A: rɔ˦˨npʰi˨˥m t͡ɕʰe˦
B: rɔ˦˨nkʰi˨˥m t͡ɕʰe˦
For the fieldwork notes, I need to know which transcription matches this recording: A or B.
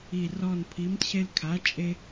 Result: A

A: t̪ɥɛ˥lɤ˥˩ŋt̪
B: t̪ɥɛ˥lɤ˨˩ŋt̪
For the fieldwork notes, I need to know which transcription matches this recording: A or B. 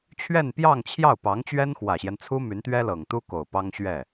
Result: B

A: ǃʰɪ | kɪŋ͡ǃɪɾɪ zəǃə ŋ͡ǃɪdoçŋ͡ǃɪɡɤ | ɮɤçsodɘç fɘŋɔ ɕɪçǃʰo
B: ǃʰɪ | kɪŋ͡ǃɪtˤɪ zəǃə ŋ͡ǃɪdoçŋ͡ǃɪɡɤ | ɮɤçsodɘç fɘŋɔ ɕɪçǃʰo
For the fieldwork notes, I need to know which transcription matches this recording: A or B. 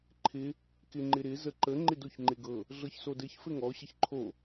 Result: A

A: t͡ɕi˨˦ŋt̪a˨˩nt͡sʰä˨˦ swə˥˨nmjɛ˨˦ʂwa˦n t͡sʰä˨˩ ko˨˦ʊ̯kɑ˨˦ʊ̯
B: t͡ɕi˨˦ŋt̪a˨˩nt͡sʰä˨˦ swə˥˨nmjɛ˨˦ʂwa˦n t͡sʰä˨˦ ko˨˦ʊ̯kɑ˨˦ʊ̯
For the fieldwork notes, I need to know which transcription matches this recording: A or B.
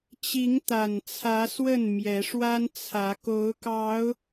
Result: B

